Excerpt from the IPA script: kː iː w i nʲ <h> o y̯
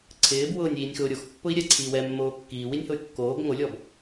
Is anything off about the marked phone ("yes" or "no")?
no